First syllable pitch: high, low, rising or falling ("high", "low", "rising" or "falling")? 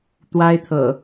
high